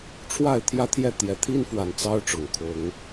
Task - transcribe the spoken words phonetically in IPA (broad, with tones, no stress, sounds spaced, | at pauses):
ʈ͡ʂʰ w a˥˨ ɪ̯ t̪ʰ j ä˦ t̪ʰ j ɛ˥˨ t̪ j ɛ˨˦ t̪ʰ i˦ n f w a˨˩ n t͡s ɑ˦ ʊ̯ ʈ͡ʂ ʊ˨˩ ŋ kʰ ʊ˨˦ ŋ